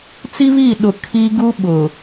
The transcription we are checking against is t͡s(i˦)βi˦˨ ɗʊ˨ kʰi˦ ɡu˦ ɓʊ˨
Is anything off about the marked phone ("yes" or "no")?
no